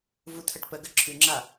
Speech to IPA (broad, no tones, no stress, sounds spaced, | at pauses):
v u t̪ʰ ə ʈ p ə ɡ ə ǁʰ ʉ ŋ͡ǁ a